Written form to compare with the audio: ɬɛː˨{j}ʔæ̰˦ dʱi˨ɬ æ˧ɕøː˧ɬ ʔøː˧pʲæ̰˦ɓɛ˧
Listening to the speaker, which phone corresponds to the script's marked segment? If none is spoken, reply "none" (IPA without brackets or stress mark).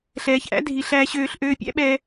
ç